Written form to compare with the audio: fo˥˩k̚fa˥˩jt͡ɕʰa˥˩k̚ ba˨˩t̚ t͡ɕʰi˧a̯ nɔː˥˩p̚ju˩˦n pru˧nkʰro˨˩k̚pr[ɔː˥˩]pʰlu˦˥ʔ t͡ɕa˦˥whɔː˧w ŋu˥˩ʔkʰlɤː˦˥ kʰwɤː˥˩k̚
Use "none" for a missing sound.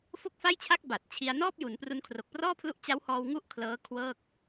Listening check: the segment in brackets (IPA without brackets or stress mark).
ɔː˥˩